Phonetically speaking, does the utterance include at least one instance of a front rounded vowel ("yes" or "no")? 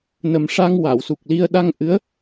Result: no